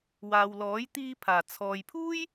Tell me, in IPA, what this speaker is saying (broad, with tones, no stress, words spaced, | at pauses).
waː˨wlɔː˨˥j t̪iː˧pʰaː˨˩ t͡sʰɔː˨jpʰuː˥j